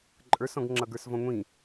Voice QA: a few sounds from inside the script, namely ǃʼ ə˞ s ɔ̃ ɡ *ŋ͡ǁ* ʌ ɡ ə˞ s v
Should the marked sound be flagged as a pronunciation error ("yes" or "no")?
no